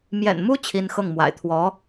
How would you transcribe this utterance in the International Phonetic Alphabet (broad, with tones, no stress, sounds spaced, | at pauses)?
m j ɛ̰˨˩ n m u˥ t͡ɕʰ i˥ n x ɤ˥˩ ŋ m w a̰˨˩ ɪ̯ t̪ʰ w ɔ˧˥